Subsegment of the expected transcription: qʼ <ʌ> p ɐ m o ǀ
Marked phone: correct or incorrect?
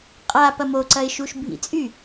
incorrect